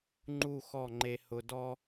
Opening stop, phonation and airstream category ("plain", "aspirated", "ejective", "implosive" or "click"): click